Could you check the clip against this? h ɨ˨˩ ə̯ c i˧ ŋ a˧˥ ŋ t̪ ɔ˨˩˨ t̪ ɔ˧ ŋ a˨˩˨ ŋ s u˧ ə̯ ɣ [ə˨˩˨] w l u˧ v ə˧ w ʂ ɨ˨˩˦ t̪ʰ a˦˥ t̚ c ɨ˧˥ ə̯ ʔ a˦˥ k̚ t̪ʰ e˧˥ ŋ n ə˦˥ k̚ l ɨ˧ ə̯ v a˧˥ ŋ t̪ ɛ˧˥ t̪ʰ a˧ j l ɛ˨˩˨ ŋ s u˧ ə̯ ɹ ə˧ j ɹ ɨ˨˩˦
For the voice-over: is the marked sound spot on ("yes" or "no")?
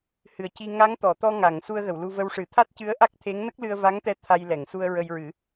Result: yes